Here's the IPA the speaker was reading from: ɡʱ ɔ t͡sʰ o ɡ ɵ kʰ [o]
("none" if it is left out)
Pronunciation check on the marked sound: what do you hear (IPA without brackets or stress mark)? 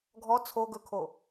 o